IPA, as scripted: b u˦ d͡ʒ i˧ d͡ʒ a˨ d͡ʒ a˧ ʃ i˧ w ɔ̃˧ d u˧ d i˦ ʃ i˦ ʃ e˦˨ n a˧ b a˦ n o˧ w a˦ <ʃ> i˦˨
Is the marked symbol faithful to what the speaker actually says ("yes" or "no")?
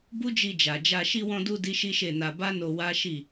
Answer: yes